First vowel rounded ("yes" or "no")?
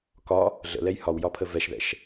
yes